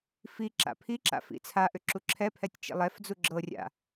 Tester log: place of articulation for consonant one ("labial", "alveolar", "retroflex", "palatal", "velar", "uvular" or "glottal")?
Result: labial